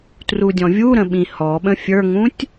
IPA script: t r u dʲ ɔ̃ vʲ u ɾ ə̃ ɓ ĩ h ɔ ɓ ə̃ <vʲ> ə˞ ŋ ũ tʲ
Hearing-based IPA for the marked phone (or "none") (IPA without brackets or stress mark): fʲ